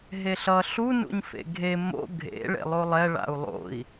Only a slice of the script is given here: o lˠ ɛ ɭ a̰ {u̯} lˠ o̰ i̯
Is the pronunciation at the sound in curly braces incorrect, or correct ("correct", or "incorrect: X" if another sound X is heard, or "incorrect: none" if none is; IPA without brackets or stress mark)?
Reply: correct